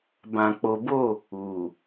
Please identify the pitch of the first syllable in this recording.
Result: low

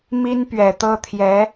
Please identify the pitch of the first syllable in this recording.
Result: high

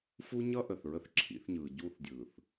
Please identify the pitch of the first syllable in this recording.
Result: high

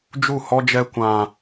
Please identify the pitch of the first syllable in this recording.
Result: falling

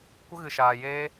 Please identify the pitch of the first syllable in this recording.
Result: high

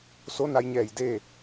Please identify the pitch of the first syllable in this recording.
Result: rising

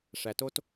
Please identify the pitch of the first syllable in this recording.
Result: low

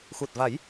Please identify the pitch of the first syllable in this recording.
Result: low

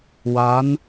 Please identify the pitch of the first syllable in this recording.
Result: rising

